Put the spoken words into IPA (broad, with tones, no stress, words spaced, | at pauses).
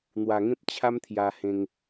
n̪wa˨˩ŋẽ˦p̚ t͡ɕʰa˦m t̪ʰja˧hẽ˧ŋ